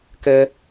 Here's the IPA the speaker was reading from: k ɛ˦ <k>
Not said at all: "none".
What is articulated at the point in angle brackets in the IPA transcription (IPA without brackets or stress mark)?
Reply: none